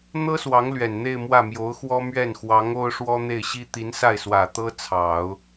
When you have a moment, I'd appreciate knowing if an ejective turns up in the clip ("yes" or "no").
no